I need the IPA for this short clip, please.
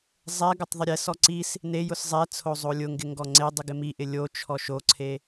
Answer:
zˤ ɛ ɡ ʊ tˤ ðˤ ɪ ɾʲ ɛ s ɔ ǀ i s | n e j ʊ s zˤ ɛ t͡sʰ o zˤ o lʲ ʊ ŋ ɡ ɪ ŋ ɡ ɔ ŋ͡ǀ e dˤ i ɡ ɪ m i ʔ ɪ lʲ o t͡ʃʰ ɔ ʃ o ǀʰ e

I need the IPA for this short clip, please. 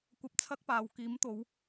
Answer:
kʷ ɐ˧ p̚ t͡sʰ ɐ˥ k̚ p aː˨ w k iː˨˥ m t̪ o˨˧ w

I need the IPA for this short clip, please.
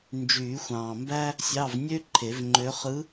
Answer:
n d͡ʒ yː˨˩˦ xʷ ɑ̃ː˨ m b æ˥ | sʲ ɑ˧˥˧ v nʲ ø˥ ǃʰ e˨˩˦ v ŋ͡ǃ ø˧˥ χ ɯ˧˥

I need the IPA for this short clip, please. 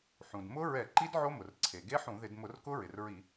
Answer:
ħ ũ˩ d m ʊ˦˥ ɹ ɛ˧˩˧ ǃ i˦˥ d ʕ o˦˥ m ʊ˩ r ǀʰ e˩ ɡ e˦˥ ħ ũ˧˩˧ ð ɪ˧˩˧ d m ʊ˧˩˧ r k ʊ˦˥ ɹ ɪ˩ r ɹ i˧˩˧

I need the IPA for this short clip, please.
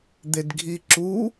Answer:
d̪ e d ɡʱ i ǁ u

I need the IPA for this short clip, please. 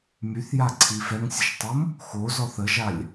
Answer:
m y θ j a ǀʰ i f ɛ ŋ sʲ ə ʃ tˤ o m | x o z ɔ θ ə ʒ a lʲ

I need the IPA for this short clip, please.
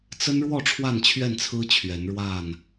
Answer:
t͡s ə˦ n ɻ w ɔ˥˨ ʈ͡ʂʰ w a˥˨ n t͡ɕʰ ɥ ɛ˥˨ n t͡sʰ ɹ̩˦ t͡ɕʰ ɥ ɛ˨˦ n ɻ w a˥˨ n

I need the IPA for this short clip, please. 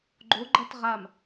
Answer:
ɡ͡ǃ o ɡ͡ǃ ɐ t ʁ a m

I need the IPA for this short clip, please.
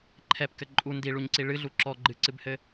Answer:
ǃʰ ɛ p k ɘ ǃʼ u n d i ɭ u ɲ ǀ i ɭ ɨ ɮ u ǁ ɔ ɡ͡ǃ ɨ ǀ ɨ b h ɘ

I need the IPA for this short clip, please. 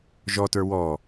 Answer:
ʒ ɔ t ə˞ w ɔ

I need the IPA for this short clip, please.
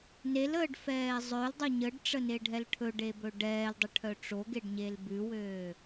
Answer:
n e l əː ɖ f ɛː zˤ œ l dˤ œ ɲ ə ɖ ʈ͡ʂ ə n e ɖʱ ɛ l ʈʰ ɵ ɖ e b ɵ ɖ ɛː l dˤ ə ʈʰ œ ʈ͡ʂ o ɡ e ɖ ɲ e l b ʉ w øː

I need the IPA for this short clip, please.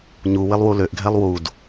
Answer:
ɲ u w ɪ lˠ w u l ø ʔ ɡʱ ɛ lˠ w u d

